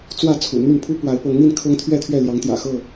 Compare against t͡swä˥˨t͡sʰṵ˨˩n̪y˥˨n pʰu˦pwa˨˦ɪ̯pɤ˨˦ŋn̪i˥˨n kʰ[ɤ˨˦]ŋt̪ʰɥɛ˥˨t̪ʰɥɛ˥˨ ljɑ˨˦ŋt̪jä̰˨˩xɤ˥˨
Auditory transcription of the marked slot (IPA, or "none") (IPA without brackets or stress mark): ɤ˦